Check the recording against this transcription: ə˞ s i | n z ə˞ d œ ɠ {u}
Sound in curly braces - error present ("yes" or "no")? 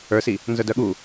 no